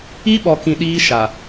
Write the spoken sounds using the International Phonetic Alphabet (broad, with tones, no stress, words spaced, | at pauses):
i˦ɓɔ˨kĩ˨ ɗiː˦ʃa˨